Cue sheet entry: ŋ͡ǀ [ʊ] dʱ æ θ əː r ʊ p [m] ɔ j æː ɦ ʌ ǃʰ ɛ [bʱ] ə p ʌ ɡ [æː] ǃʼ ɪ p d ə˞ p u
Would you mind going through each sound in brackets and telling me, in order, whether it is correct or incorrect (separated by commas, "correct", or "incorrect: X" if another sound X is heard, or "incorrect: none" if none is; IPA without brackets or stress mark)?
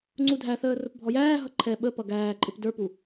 incorrect: u, incorrect: bʱ, incorrect: ɓ, correct